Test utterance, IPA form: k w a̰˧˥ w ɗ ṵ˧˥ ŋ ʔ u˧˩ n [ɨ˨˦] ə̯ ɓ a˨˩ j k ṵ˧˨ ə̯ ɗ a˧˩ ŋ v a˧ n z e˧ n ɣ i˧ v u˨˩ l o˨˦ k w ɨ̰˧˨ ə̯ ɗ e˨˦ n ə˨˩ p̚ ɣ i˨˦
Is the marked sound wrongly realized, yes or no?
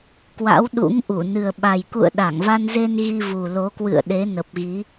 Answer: yes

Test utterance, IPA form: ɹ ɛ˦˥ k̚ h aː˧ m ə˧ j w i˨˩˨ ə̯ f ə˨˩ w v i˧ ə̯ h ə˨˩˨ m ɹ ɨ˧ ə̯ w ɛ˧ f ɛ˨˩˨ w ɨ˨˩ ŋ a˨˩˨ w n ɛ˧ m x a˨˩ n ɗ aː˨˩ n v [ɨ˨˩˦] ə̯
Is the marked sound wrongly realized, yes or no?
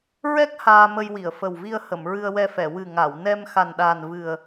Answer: yes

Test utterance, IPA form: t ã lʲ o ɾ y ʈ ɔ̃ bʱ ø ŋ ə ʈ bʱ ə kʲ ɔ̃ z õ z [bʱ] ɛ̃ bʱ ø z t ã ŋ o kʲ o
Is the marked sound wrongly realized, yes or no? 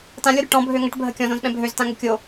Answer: yes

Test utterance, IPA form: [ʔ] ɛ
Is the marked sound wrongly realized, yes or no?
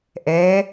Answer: no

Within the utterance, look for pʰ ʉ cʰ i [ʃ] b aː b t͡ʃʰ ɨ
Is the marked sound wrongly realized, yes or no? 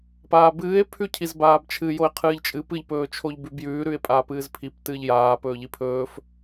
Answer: yes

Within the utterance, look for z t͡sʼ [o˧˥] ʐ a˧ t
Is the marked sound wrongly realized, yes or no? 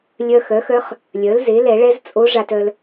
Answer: no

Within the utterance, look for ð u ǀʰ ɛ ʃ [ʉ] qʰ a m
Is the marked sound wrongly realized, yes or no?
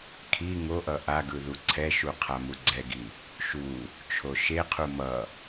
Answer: yes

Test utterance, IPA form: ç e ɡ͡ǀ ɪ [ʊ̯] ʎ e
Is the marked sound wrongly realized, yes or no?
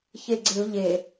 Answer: no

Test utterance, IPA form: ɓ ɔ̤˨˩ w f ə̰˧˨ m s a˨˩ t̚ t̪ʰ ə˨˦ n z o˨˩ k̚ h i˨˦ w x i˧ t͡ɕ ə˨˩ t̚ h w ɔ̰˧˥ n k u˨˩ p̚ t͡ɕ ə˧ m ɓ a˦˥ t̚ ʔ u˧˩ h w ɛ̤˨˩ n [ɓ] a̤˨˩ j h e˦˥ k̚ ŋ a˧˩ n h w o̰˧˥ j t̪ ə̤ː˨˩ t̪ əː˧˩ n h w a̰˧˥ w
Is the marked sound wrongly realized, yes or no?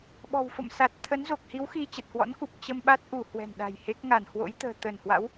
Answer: yes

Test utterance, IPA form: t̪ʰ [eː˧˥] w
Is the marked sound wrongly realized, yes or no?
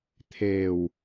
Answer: yes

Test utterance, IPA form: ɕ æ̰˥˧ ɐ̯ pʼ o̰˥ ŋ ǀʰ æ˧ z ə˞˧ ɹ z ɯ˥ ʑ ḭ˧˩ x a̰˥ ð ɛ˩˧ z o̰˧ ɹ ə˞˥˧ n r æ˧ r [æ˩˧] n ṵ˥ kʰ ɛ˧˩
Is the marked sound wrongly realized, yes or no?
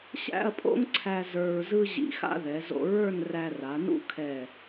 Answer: yes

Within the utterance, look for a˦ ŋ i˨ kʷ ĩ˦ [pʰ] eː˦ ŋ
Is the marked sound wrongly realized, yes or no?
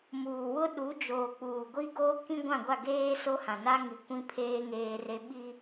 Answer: no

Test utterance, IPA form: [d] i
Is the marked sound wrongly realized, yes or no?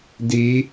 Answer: no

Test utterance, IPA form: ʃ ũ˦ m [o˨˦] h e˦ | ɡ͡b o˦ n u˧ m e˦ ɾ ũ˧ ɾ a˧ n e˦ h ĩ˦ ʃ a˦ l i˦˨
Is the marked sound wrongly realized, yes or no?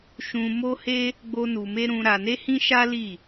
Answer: yes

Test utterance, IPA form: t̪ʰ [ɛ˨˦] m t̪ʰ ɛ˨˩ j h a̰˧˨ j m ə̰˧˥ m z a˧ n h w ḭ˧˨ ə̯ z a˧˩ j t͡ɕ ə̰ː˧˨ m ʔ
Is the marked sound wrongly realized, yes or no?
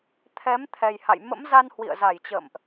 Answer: no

